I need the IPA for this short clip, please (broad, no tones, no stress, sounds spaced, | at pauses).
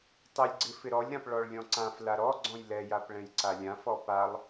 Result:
tˤ ɪ lʲ ɡ͡ǀ ɪ f ɪ ɾ ɔ lʲ ɾ ã p ɭ ɔ ɭ lʲ ɔ̃ ǀ ã f l a ɾ ɔ ɡ͡ǀ ɔ̃ j l ɛ j a p ɭ ɛ̃ j ǀ a lʲ ã f ɔ p a lˠ